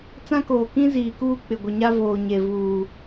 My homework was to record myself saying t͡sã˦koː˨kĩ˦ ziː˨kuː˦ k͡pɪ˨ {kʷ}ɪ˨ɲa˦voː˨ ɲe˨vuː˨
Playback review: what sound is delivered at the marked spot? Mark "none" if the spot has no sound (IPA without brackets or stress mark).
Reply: ɡʷ